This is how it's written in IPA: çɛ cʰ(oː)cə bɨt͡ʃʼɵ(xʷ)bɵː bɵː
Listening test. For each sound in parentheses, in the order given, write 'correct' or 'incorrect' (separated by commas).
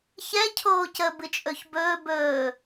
correct, incorrect